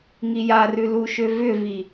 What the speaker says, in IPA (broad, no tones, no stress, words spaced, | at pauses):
ŋijarʉ luʃʏvʏvi